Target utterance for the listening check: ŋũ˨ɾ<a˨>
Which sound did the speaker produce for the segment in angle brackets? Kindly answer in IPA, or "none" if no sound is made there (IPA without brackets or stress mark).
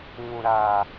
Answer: aː˨